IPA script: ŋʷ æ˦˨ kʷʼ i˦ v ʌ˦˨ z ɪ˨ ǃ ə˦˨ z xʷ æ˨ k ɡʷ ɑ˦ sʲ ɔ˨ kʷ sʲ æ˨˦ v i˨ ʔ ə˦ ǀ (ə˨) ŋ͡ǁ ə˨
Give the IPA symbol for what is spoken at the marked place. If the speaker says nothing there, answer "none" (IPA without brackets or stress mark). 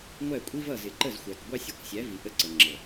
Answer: ə˨